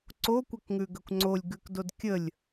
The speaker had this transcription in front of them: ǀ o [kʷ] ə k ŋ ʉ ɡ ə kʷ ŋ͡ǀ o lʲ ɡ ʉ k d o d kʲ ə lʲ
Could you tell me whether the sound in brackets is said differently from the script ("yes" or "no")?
no